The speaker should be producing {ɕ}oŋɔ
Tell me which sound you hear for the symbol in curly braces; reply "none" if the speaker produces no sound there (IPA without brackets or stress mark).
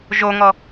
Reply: ʒ